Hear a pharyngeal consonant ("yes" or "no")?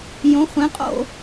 no